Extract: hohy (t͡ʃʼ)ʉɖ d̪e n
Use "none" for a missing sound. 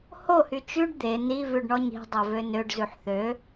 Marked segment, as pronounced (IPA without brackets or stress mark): t͡ʃ